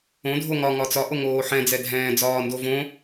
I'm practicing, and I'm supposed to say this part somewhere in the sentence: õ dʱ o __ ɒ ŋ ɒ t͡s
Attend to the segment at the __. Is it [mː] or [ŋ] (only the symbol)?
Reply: ŋ